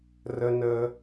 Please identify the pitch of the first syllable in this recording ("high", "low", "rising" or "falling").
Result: high